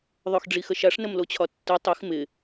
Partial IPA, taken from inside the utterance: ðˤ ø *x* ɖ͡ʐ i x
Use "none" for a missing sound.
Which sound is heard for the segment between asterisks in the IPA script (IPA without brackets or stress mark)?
x